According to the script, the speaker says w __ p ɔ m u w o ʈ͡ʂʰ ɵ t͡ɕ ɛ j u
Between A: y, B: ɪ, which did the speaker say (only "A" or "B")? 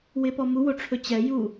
B